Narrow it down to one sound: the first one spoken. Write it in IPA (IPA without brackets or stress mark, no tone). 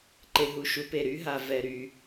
ǃ